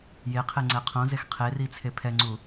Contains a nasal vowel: yes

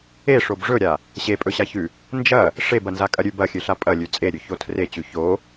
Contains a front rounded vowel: no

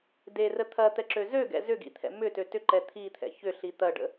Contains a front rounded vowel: yes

